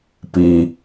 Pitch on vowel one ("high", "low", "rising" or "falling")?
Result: low